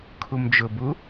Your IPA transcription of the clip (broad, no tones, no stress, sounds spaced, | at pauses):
kʰ u m d͡ʒ ʊ b u